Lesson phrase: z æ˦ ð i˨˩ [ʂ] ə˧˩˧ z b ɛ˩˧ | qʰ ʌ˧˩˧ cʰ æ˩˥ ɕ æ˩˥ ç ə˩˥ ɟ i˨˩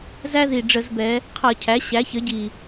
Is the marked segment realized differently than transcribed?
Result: yes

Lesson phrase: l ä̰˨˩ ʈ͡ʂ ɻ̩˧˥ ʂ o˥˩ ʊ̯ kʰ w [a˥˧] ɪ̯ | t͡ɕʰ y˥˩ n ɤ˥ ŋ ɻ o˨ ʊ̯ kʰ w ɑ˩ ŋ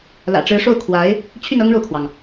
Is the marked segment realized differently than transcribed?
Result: yes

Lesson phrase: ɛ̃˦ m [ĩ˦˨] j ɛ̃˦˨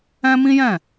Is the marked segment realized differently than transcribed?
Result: yes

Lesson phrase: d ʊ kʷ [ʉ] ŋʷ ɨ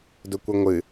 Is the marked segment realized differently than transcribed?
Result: yes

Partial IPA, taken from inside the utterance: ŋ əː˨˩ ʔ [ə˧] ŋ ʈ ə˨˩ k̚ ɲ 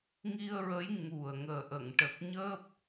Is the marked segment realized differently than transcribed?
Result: yes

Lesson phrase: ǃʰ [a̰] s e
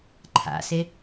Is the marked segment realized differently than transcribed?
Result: no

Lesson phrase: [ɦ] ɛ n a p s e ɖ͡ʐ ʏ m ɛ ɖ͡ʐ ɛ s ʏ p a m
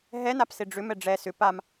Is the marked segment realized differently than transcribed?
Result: no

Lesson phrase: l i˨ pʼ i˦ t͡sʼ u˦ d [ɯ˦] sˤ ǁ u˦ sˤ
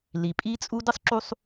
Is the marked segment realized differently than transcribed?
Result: no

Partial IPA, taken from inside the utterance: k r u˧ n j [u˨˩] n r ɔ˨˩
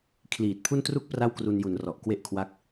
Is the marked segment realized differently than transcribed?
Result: yes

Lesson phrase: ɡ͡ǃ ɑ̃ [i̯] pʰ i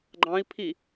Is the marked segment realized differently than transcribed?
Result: no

